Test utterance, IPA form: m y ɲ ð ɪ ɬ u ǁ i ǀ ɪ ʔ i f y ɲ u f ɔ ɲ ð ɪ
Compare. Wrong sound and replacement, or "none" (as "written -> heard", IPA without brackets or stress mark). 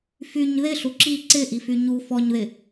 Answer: m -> f